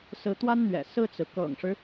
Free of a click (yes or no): yes